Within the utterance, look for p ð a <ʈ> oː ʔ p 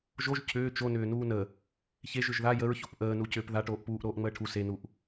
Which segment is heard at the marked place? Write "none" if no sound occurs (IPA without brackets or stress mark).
ʈ